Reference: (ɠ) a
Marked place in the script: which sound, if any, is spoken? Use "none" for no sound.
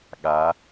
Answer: ɠ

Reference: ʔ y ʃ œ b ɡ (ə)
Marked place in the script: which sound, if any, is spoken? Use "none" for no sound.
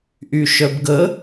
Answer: ə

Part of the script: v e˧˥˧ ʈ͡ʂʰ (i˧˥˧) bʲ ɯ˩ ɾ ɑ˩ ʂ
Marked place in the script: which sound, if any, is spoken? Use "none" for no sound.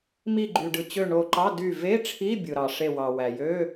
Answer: i˧˥˧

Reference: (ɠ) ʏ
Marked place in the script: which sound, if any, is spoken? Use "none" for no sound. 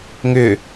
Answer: ŋ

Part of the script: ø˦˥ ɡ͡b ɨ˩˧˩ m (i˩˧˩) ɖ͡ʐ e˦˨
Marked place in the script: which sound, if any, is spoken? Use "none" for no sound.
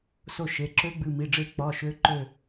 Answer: i˩˧˩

